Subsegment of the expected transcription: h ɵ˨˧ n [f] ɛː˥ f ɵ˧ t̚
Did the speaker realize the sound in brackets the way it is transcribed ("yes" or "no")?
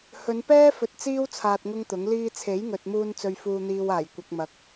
no